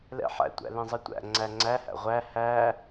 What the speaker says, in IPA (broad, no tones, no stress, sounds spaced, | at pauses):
l ɛ̰ ħ æ̰ tʷ æ̰ l ɛ̃ zˤ ɜ tʷ æ̰ ŋ͡ǀ æ ŋ͡ǀ æ h æ̰ ʁʷ æ h æ